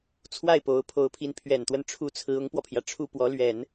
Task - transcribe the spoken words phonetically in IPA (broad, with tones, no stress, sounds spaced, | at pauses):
t͡sʰ w a˥˩ ɪ̯ p o˧˥ ʊ̯ pʰ o˧˥ ʊ̯ pʰ i˧˥ n pʰ ɥ ɛ˨˩ n t̪ w ə˥˩ n ʈ͡ʂʰ u˥ t͡sʰ ɹ̩˧˥ ʊ˧˥ ŋ p w ɔ˧ pʰ j ä˩ ʈ͡ʂʰ u˥˩ p w ɔ˧˥ l ɥ ɛ˨˩˦ n